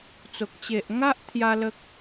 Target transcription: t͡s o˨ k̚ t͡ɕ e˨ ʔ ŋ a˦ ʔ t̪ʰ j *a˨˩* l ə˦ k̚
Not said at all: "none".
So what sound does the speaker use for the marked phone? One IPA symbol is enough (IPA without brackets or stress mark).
a˦